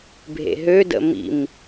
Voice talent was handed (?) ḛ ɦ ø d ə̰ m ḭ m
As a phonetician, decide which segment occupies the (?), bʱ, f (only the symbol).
bʱ